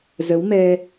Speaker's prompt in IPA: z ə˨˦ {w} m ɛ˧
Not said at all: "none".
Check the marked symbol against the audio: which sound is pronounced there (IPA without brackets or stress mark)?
w